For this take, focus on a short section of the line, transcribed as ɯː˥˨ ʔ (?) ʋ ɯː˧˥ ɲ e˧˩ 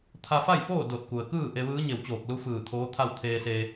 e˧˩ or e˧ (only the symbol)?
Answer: e˧